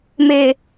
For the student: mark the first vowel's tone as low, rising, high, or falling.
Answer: low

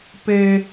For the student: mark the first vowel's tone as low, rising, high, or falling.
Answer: high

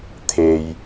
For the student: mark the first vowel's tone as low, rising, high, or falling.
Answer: low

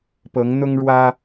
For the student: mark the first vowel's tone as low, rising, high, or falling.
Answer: rising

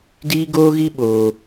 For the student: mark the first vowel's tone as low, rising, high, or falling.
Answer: high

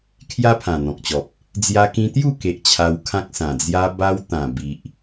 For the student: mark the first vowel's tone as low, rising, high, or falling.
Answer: high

